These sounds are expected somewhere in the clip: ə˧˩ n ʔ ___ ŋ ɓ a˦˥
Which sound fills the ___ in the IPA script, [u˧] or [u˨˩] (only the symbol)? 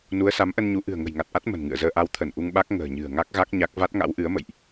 u˧